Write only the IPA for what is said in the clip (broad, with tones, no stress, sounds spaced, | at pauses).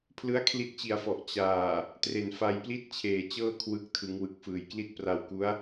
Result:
pʰ l ɯ˦˥ a̯ kʰ l i˦˥ t̚ t͡ɕ i˨˩ a̯ f ɔ˨˩ ʔ t͡ɕ aː˨˩ | t r e˨˩ n f a˧ j p l i˥˩ t̚ t͡ɕʰ eː˨˩ t͡ɕ ɤː˥˩ kʰ w ɯ˦˥ k̚ tʰ ɯ˩˦ ŋ w ɯ˨˩ k̚ f ɯː˨˩ j k l i˥˩ t̚ p r a˧ w k u˦˥ a̯